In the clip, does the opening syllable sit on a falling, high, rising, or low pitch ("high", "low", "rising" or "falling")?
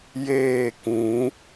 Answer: falling